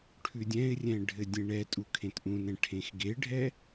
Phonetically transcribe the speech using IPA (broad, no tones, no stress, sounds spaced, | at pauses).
ʈʰ ʉ dʲ ɛ̃ ɪ̯ rʲ ɛ̃ ɖʱ ɘ dʲ ẽ ɳ ɛ tʼ u kʰ ẽ t ʔ ũ n ɛ̃ ʈʰ ẽ x ɡ e ɖʱ ɛ